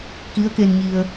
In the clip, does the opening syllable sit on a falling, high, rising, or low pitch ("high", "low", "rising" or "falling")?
rising